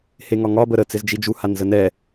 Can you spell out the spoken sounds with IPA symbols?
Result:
h e ŋ ɒ ŋ ɒ b ə ɾ ə t͡s ɪ z d͡ʒ i d͡ʒ u h a n z ə n ɛ

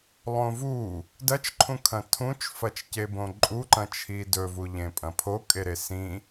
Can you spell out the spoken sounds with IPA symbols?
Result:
lˠ õ v u | d ɐ t͡ʃ ǃʰ ũ kʰ ɐ̃ tʰ ũ t͡ʃ f ɐ t͡ʃ c e b õ ǃʼ u ǃ ɐ̃ t͡ʃʰ i d ɵ v u ʎ ẽ pʼ ɐ̃ pʰ o kʼ e ɾ e s ĩ

